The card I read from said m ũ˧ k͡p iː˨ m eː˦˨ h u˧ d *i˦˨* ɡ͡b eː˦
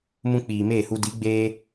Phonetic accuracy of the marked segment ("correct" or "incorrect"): incorrect